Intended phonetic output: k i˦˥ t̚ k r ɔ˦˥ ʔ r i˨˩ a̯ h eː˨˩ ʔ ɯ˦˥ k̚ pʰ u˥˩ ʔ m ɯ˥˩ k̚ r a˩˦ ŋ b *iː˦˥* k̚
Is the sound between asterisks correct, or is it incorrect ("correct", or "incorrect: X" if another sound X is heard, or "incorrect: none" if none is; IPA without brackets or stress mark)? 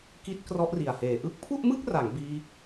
correct